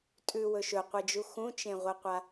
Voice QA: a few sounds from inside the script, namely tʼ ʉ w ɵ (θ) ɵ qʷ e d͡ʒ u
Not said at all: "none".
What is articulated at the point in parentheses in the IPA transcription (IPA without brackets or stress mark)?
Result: ʃ